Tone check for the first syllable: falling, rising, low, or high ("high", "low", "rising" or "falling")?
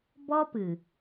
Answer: high